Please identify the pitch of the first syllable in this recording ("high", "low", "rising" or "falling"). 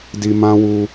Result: low